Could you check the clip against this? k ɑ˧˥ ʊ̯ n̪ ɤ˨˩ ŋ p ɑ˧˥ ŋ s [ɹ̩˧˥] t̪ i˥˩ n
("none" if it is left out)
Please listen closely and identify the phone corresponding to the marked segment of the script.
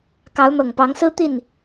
ɹ̩˥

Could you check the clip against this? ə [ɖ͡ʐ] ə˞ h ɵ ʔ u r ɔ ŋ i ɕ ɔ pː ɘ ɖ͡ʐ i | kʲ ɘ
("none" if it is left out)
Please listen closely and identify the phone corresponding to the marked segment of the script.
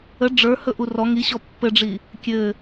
ɖ͡ʐ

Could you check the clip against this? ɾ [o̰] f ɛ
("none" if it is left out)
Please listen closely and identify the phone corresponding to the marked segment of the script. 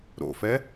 o̰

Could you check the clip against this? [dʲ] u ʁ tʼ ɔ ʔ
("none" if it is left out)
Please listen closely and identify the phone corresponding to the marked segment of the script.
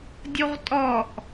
dʲ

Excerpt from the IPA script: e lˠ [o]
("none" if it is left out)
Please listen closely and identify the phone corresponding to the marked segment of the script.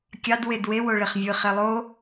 o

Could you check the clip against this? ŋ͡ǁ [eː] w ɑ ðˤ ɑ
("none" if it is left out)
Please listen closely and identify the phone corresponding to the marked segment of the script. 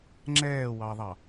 ɛː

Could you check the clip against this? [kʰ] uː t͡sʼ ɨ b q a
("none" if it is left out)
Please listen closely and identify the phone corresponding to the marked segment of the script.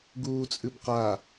ɡ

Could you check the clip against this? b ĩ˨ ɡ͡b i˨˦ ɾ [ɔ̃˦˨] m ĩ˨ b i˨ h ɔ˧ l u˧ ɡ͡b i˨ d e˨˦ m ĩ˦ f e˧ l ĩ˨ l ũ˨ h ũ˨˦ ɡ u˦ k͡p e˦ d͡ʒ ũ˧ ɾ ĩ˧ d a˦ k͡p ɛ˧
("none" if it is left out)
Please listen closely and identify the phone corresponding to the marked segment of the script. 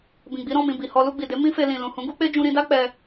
ɔ̃˦˨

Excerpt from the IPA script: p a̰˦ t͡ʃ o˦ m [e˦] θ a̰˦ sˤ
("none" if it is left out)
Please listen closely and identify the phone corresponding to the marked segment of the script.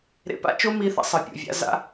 i˦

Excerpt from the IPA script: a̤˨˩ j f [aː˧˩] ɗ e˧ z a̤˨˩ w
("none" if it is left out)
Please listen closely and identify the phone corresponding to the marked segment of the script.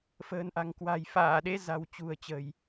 aː˧˩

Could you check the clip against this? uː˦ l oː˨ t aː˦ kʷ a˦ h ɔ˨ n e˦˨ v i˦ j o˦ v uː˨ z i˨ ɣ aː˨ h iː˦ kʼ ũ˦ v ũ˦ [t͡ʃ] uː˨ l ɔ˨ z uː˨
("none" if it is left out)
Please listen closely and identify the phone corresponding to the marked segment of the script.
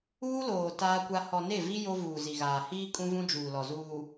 d͡ʒ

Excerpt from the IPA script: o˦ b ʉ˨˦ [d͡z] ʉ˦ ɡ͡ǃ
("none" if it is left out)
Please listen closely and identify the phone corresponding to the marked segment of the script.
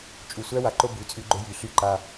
t͡sʼ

